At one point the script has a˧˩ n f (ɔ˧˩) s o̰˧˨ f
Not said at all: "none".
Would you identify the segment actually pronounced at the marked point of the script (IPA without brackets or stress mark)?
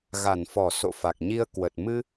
ɔ˧˩